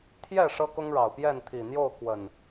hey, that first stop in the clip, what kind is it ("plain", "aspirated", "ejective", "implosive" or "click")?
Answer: aspirated